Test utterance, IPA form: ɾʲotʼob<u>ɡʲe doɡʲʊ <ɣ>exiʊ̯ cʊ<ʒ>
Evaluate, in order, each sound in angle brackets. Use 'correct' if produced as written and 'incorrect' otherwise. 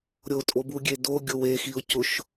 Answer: correct, incorrect: w, incorrect: ʃ

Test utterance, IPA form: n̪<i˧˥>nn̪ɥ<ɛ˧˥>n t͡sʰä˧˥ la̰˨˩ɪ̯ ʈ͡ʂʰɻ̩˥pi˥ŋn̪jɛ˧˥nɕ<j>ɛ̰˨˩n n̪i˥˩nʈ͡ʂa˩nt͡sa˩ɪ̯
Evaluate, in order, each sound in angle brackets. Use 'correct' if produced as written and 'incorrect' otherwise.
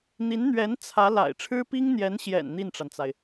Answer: correct, correct, correct

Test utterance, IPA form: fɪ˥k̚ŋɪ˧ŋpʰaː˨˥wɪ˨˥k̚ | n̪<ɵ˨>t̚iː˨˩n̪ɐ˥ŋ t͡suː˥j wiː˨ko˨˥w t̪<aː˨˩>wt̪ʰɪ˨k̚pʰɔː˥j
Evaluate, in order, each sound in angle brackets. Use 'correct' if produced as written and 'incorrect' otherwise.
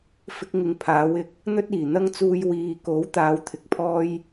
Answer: incorrect: ɵ˥, incorrect: aː˨˥

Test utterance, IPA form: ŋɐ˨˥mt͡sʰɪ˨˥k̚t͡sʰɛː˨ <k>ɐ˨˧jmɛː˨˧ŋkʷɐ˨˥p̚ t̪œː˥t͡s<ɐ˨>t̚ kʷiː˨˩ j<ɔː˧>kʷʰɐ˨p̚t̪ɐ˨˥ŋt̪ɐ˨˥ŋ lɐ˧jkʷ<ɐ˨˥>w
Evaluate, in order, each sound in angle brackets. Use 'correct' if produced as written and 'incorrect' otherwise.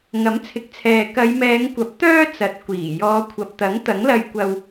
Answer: correct, correct, incorrect: ɔː˨˧, incorrect: ɐ˧

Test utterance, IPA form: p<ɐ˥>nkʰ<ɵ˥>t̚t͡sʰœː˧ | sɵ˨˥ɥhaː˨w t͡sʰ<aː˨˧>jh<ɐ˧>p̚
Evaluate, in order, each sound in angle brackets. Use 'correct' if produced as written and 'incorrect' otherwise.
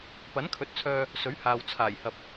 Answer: incorrect: ɐ˨˥, incorrect: ɵ˨˥, incorrect: aː˨˩, incorrect: ɐ˨

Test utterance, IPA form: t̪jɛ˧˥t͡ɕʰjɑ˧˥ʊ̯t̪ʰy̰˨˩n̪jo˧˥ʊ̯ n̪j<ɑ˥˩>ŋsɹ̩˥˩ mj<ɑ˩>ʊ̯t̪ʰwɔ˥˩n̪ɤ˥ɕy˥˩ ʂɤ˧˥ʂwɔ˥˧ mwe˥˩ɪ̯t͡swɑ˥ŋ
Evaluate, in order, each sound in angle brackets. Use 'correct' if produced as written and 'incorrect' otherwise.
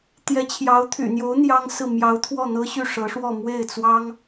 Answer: incorrect: ɑ˥, incorrect: ɑ˧˥

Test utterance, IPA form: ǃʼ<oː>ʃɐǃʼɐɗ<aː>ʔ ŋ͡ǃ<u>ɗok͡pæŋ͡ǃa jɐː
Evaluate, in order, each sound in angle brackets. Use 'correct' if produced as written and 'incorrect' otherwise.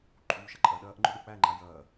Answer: incorrect: uː, incorrect: ɐː, incorrect: ʊ

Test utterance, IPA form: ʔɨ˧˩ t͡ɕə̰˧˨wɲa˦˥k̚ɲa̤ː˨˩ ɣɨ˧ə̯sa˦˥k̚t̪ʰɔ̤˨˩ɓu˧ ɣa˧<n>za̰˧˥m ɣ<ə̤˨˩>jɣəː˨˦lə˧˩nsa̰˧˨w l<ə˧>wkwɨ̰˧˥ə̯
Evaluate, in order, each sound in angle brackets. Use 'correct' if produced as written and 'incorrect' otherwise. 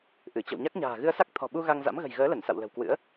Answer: incorrect: ŋ, correct, incorrect: ə̤˨˩

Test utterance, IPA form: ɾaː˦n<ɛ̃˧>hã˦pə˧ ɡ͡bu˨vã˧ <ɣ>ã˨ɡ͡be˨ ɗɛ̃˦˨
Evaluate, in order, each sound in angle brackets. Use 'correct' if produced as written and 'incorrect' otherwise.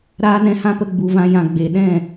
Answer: correct, incorrect: j

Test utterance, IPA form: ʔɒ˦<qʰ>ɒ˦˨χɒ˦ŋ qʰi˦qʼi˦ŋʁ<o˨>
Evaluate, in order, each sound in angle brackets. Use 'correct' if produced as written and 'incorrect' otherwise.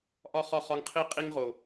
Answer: incorrect: χ, correct

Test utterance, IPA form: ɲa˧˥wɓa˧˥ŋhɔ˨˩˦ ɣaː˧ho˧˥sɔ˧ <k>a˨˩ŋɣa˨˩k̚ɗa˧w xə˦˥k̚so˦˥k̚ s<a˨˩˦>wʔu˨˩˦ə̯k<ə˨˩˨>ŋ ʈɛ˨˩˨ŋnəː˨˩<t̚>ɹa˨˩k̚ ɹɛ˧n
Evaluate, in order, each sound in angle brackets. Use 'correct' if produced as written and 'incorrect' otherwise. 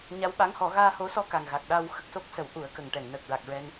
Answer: correct, incorrect: ə˨˩˦, correct, incorrect: k̚

